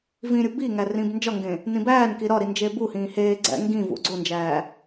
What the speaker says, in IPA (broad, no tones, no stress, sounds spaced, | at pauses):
v ĩ ɾʲ u b i ŋ æ r ĩː b n d͡ʒ ɒ ŋ ɡ ẽ | n ĩ b æː n k i ɾ ɒ ɾ i n d͡ʒ e b u h ĩː h eː ɡ͡ǀ æ̰ ŋ ɡ ĩ v ṵ ɡ͡ǀ o n d͡ʒ æː